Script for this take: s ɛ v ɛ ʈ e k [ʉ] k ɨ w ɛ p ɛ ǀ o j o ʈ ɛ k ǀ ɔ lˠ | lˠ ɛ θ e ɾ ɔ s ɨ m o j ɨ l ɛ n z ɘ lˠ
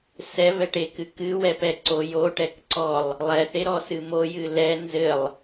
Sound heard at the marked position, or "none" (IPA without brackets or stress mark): ɨ